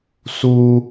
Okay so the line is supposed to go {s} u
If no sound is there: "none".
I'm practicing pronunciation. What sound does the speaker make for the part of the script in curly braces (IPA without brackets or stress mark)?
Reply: s